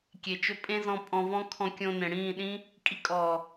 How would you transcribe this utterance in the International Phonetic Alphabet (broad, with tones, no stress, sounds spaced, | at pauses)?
kʲ e˨ t͡ʃ ɵ˧ pʼ ẽ˦ z ɔ̃˧ pʼ ɔ̃˧ v ɔ̃˦ kʰ ɔ̃˧ kʲ õ˧ n ẽ˨ ɽ ĩː˦˨ ɗ ĩ˦ | kʼ i˦ kʼ ɔː˨